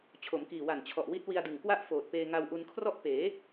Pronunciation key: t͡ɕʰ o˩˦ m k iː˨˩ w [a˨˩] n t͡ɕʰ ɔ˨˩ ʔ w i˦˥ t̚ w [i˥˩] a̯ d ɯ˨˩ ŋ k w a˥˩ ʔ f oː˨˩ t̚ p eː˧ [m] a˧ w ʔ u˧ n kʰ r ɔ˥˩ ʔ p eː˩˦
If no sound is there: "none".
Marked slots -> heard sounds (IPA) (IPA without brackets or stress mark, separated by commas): a˨˩, i˧, ŋ